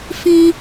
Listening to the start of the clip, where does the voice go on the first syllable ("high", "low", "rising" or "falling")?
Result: high